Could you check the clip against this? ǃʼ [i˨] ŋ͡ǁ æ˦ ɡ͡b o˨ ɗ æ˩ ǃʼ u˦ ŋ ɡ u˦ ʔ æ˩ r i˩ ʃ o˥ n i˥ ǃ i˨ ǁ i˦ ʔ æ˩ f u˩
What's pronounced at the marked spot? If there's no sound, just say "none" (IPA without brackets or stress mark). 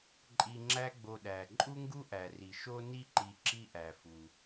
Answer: i˨